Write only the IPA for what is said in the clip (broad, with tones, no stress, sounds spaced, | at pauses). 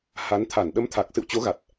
h a˨˦ n t̪ʰ a˧˩ n ɗ ə˨˦ m t̪ʰ a˨˩ k̚ s ɨ̰˧˨ w t͡ɕ o˨˦ ɣ a˨˩ t̚